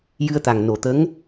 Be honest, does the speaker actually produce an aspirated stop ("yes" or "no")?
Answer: no